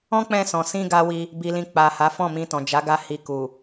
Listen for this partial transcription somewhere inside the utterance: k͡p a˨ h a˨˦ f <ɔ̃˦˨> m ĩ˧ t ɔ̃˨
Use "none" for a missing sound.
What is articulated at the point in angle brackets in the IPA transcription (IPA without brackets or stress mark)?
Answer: ɔ̃˦˨